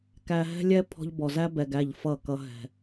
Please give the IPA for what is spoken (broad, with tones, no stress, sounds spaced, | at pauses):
k æ˧ ɦ ɛ̤˦ lʲ ɛ˦ pʰ ɔ̤˧ ʎ b ɔ˨ z æ˦ b ɛ˨ ɡ æ˦˨ ʎ f ʌ˦˨ k ʌ˧ ɦ ɛ̤˨